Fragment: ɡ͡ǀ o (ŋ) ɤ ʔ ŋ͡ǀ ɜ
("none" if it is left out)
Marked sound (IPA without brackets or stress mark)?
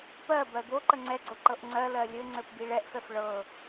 ǃ